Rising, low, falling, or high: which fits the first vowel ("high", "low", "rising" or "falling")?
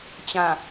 low